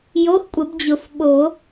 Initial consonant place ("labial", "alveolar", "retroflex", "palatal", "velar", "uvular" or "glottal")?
palatal